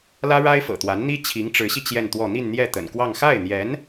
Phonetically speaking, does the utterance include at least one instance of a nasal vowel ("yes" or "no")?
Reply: no